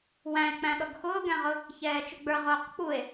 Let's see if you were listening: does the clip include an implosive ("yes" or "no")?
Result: yes